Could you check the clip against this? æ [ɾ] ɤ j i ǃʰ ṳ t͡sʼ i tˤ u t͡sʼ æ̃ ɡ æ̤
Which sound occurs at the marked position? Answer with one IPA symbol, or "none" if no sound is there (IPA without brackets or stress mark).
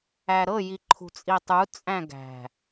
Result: ɾ